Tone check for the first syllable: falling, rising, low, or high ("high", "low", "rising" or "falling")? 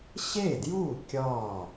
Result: falling